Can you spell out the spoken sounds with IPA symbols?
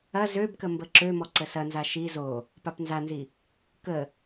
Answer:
ɐ zøbkə mbəǁømɔ ǀəsɐnza ʃi zo | papnzanzi | kə

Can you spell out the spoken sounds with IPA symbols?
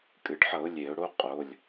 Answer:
kʼɨ˩ɖħʌ˧˩˧ʊ̯ lʲe˧˩˧ʊ̯ɽo˧˥˧ qʼo˩˧˩lʲ

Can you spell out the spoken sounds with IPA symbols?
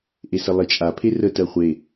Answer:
ʔesəlˠet͡ʃʼa pʰerə tɜχʷe

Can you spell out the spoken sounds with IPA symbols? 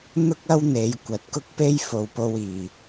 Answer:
n̪ʊ˥k̚ ɐ˥wn̪e˨˧j kʷɐ˨t̚kʊ˥k̚pe˥j fo˨˧wpo˧wiː˨˩

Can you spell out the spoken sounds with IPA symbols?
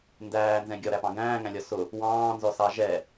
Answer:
ndæːnzɛ̃ ɡʲɒɾæpɑ̃ ɡæ̃ːŋæ̃lʲɒ sʊ | wɑ̃ːnzɔsɑ ʒɛ

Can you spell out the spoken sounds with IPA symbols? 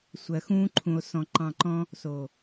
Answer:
sʷɜ˨xũː˦ ǃʰũ˧o̯sɔ̃˧ ǃɑ̃˧ǃɔ̃˦ | so˨

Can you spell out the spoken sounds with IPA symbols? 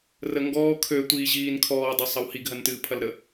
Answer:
rəŋɡɔː kʰø tʷiːʑiːnkʰɔːdˤɐ sˤɐwhiɡɦɐn tɨːpʰɐlɾə

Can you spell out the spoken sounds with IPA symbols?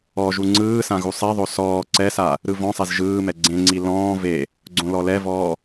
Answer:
ɔʒu ŋ͡ǀɯːsã ɣusˤɛðˤo sɔː ǀɛsa | ɾɯvɔ̃sˤez ʒɯːmɛ ɡ͡ǀẽŋ͡ǀi lɔ̃ː ve | ɡ͡ǀõlɔlɛvɔː

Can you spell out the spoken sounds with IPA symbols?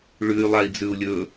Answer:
ɭʉy̯ lˠai̯d͡zʉu̯lʲɵ

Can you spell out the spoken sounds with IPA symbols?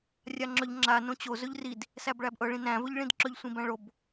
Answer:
rʲaŋ͡ǁɵʎ ŋ͡ǁa nõt͡ɕo zɵʎrid | sæbɭæbʔɤ ɭĩnæ̃ vɵʎɭĩdǁɵʎ sʷĩbæ̃ɭob

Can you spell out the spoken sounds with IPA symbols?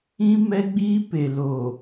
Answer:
ĩ˦ mɛ˦ɡ͡biː˦pe˨ lo˨

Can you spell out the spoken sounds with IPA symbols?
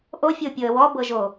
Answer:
ʔofʲopʲɤə̯ wɔbɤʒo

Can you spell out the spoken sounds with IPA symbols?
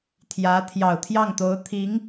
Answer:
t̪ʰjä˧˥ t̪ʰjɑ˨˩ʊ̯t̪ʰjɑ˥˩ŋt̪o˧˥ʊ̯ t̪ʰi˧˥ŋ

